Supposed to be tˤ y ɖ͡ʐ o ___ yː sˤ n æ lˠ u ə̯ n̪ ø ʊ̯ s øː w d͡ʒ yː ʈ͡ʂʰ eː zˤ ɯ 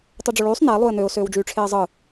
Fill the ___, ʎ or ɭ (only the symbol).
ɭ